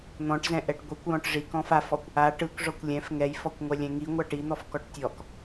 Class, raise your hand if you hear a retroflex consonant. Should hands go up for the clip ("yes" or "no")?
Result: yes